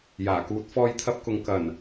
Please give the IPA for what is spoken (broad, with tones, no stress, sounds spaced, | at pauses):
j aː˨˩ k uː˨˥ t̚ f ɔː˧ j t̪ʰ ɐ˧ p̚ k ʊ˨ ŋ k ɐ˨˩ n